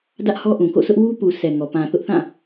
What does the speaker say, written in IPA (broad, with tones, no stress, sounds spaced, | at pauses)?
d ä˦ ʔ h ɔ˦ ʔ ũ˨ k o̰˦˨ sʰ ʊ˦ ʔ w u˦ p u˨ sʰ ɛ˨ ŋ ɔ˨ p ã˨ θ ʊ˦ ʔ θ ã˦˨